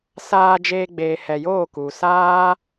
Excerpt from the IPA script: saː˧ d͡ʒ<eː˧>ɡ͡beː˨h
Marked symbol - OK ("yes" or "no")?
yes